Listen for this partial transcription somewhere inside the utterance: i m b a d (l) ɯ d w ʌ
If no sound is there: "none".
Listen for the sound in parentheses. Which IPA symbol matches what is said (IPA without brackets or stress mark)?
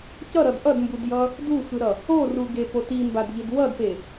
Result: ʎ